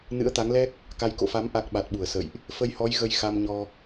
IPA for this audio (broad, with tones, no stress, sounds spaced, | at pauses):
n ɨ̰˧˥ ə̯ t̪ a˨˦ ŋ l ɛ˦˥ k̚ | k a˧ j k o̰˧˨ f a˨˦ m ʔ a˦˥ k̚ ɓ a˨˩ t̚ ɓ u˧˩ ə̯ s ə̰˧˨ j ʔ | f ə˧ j h ɔ˨˦ j ɣ ə˧ j x a˧ m ɲ ɔ˧